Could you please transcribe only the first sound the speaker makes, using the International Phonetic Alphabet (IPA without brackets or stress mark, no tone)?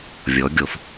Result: vʲ